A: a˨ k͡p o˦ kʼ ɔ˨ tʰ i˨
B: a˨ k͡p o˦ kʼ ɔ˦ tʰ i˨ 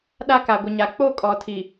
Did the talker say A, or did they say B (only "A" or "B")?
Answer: A